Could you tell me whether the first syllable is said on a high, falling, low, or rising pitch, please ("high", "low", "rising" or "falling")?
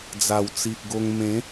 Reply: low